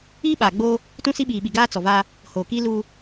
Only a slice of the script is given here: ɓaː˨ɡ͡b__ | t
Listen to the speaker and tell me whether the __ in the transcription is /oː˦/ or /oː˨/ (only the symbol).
oː˦